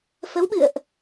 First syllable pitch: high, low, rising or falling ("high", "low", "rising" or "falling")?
rising